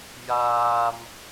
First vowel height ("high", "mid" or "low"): low